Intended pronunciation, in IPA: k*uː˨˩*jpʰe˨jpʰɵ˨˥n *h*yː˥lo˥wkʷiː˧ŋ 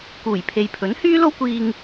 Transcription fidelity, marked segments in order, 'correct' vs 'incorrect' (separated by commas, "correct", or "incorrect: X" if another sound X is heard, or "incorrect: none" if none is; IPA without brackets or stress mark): correct, correct